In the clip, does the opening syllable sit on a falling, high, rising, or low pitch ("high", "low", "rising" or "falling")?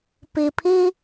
low